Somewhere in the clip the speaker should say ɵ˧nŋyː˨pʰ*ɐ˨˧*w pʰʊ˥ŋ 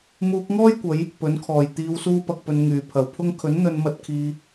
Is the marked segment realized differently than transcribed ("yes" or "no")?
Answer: no